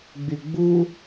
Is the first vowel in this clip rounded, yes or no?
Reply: yes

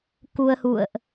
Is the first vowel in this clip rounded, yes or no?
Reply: yes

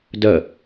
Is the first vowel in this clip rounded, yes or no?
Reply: no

